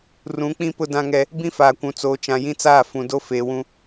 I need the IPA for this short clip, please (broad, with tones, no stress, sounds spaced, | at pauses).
r ũ˨˦ k͡p ĩ˦ p ʊ˦ d ã˦ ŋ ɛ˦ | b ĩ˦ f aː˨ kʷ ũ˨ t͡s oː˨ t͡ʃ ã˨ j ĩ˦ t͡s aː˦˨ f ũ˨ d o˦ f eː˨ w ũ˦